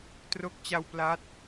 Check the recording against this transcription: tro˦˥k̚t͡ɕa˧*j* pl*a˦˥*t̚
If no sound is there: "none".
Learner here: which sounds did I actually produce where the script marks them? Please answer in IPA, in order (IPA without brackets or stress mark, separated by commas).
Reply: w, a˦˥